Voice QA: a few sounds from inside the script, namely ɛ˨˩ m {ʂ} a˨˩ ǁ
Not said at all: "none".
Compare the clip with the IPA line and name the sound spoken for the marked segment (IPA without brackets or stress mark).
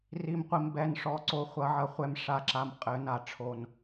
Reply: ʂ